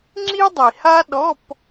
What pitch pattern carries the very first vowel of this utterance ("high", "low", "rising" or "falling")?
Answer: high